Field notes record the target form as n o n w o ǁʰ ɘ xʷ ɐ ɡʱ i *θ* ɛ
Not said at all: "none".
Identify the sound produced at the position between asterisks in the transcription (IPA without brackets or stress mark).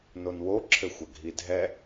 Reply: dʱ